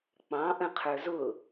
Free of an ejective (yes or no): yes